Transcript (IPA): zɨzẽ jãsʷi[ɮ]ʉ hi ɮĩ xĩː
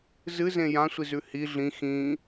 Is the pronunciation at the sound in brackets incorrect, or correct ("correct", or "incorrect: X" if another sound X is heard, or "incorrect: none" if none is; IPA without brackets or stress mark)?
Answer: incorrect: z